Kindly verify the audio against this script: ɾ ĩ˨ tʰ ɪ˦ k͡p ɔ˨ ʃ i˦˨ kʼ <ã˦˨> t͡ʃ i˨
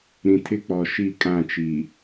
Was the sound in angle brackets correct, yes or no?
yes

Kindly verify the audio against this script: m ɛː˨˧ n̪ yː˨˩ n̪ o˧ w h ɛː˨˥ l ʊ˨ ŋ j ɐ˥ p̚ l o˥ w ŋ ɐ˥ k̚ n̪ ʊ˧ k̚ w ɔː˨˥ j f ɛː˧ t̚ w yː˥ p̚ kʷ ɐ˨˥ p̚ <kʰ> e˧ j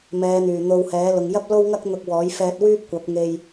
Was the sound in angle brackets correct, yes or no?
no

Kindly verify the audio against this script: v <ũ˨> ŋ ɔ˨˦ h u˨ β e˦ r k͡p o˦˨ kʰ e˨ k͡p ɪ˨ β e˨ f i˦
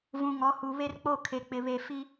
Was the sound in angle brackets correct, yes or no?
yes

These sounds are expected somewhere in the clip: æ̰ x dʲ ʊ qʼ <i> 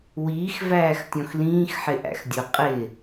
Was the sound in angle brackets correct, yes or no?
no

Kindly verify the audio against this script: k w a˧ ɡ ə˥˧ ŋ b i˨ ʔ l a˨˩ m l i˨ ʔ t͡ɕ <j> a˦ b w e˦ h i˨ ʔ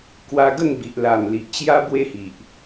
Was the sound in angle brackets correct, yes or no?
yes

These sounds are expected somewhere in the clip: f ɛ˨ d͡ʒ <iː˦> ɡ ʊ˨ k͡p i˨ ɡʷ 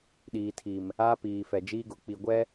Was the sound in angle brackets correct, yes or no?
yes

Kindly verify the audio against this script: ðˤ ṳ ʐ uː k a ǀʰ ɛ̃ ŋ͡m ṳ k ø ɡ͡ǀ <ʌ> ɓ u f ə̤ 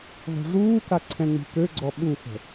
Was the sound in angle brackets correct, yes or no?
no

